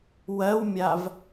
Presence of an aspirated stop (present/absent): absent